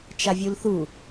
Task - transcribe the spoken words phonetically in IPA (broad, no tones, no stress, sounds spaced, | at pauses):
t͡ʃ a vʲ u l θ u